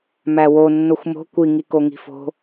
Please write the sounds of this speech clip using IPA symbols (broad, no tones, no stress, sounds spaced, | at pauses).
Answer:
m æ w o nː o xʷ m o̤ kʷ i ŋ i k o ŋ i̤ f o̤